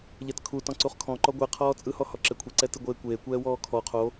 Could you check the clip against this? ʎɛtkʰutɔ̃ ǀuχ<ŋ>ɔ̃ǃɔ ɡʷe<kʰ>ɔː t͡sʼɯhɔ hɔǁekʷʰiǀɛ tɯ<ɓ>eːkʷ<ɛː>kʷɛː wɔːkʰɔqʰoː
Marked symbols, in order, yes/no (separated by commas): no, no, no, no